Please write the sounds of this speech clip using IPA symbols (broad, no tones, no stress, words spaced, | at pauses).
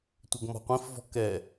tʷɘɡmɔ̤qʷĩfvɔ̤ kɛ